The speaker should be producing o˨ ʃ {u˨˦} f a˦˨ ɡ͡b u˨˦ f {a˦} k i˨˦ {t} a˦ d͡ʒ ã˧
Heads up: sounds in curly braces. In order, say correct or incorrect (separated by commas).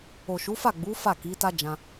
correct, incorrect, correct